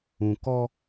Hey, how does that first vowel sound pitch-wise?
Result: low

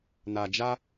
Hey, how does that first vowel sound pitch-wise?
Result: low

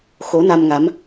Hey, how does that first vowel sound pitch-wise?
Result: rising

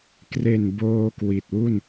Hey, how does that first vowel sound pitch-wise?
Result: low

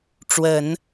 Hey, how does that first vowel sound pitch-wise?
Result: low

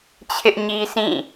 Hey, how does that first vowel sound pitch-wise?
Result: high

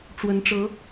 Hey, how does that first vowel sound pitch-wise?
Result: rising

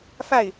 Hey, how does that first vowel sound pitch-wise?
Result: falling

